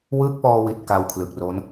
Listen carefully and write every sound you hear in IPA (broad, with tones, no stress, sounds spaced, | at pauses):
w ɯː˦˥ k̚ p ɔː˧ w i˨˩ t̚ k a˧ w kʰ l ɯ˨˩ k̚ r o˦˥ n